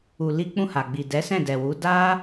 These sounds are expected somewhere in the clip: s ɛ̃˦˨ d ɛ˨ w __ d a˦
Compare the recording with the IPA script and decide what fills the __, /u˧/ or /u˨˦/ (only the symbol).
u˨˦